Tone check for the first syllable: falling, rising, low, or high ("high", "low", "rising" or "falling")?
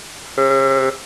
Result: low